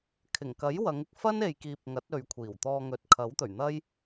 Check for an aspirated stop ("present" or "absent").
present